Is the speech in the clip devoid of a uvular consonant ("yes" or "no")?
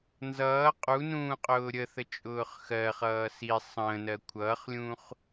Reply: no